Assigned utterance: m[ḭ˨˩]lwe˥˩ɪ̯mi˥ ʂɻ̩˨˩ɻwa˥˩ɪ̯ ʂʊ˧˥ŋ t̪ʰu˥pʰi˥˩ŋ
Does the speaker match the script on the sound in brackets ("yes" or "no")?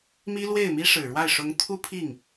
no